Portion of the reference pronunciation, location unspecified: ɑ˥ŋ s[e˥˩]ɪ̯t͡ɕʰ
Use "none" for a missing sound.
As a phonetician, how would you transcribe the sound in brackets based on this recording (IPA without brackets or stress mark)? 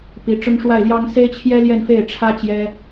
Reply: e˥